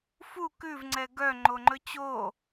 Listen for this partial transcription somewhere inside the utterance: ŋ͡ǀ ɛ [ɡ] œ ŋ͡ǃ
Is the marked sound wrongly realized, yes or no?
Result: no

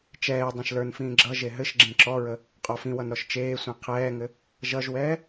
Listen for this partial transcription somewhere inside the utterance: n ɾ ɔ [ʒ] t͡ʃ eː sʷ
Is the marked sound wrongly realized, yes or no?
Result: yes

